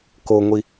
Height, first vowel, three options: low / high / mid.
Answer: mid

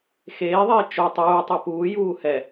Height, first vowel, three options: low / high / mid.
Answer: mid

